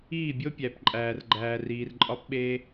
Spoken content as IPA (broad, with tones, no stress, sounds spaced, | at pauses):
iː˦˨ bʲ o˦ pʲ æ˨ p ǃʼ æː˨ r ɡ͡ǃ æː˨ r iː˨ r ǃʼ ɒ˦ p ɓ eː˦